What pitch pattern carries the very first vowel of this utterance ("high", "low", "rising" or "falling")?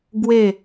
falling